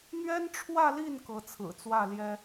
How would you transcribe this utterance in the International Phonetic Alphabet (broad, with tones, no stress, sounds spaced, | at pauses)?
n̪ ɥ ɛ˥ n ʈ͡ʂʰ w ä˥˧ l i˥˩ n k ɤ˧˥ t͡sʰ ɹ̩˨˩ t͡s w ä˥˩ l j ɛ˥